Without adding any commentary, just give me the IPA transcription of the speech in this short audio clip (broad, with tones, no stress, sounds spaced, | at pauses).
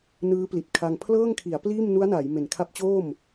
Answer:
n ɯː˦˥ p l i˨˩ t̚ kʰ a˧ ŋ pʰ l ɤː˥˩ ŋ kʰ i˩˦ a̯ p l iː˥˩ m n u˦˥ a̯ n aː˩˦ j m e˨˩ n kʰ a˦˥ p̚ t͡ɕ oː˥˩ m